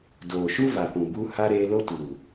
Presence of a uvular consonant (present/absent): absent